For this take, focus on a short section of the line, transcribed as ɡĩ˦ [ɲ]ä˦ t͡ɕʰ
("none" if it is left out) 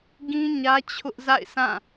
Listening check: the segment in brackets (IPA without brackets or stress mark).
ɲ